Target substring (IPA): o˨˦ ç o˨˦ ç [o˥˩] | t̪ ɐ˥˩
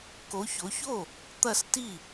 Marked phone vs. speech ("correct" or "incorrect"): correct